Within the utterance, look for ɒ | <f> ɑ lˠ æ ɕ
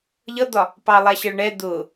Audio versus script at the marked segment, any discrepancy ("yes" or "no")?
yes